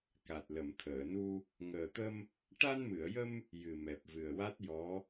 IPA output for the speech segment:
k a˨˩ t̚ l ə˨˩˨ m t̪ʰ əː˨˩˨ n u˧ | ŋ əː˨˩ t̪ ə˧ m | ʈ a˧ n m ɨ˨˩˨ ə̯ j ə˧ m | j ɨ˨˩ m ɛ˨˩ p̚ v ɨ˨˩ ə̯ w a˦˥ t̚ j ɔ˧˥

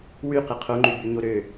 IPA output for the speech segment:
w y q e qʰ o ŋ͡ǃ y b y ɲ o ɾ ø

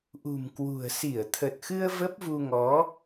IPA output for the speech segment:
ʔ ṳ˨˩ m k w ṳ˨˩ ə̯ s i˧˩ ə̯ t̪ʰ ə˨˩ t̚ x ɨ˧ ə̯ v ə˦˥ p̚ v u˧ ŋ ɔ˨˦

